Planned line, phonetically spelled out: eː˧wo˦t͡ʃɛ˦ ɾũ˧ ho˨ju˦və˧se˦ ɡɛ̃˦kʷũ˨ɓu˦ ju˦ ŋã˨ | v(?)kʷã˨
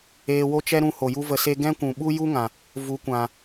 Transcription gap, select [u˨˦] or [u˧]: u˨˦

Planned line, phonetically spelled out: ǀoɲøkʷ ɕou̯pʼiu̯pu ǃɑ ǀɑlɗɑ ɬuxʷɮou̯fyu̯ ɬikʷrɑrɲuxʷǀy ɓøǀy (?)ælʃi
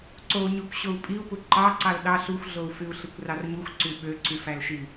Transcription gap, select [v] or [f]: f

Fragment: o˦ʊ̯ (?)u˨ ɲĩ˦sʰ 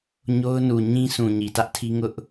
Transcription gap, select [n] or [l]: n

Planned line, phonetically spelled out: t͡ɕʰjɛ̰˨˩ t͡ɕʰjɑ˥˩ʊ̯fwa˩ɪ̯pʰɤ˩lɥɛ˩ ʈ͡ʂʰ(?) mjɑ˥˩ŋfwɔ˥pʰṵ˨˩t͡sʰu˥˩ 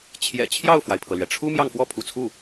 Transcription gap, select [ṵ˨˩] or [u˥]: u˥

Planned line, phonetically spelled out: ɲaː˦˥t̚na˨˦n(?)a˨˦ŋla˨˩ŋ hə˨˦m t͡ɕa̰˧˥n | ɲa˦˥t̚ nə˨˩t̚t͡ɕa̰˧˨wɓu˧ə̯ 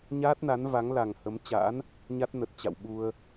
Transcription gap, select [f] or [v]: v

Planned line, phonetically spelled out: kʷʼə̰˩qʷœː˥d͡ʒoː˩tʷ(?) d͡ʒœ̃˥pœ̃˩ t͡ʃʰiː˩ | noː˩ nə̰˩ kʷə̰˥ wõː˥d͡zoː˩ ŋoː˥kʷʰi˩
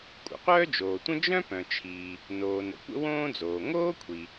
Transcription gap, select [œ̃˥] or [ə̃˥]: ə̃˥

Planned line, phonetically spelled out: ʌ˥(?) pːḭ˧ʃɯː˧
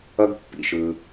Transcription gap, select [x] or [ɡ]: ɡ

